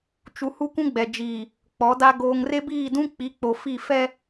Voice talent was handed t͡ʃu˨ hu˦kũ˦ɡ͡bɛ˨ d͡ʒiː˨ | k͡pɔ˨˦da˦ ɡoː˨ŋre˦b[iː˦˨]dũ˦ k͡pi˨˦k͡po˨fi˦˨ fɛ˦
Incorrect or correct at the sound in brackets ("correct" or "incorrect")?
correct